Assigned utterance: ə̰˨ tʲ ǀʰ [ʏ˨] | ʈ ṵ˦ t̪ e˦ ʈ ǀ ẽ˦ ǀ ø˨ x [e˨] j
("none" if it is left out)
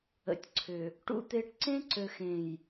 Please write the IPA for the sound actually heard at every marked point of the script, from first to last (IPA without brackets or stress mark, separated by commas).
ʏ˨, ẽ˨